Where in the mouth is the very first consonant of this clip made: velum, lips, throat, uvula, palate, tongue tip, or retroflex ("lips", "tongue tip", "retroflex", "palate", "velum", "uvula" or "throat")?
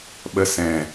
lips